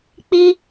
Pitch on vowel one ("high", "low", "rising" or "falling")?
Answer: high